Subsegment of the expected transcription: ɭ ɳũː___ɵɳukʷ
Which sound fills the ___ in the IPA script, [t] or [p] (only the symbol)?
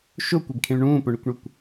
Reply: p